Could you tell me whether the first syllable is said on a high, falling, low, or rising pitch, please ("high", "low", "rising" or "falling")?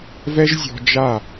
high